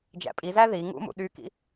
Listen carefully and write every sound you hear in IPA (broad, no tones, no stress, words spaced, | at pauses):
d͡ʒæ̰pʼizæ ði ŋṵmṵ ɗykḭ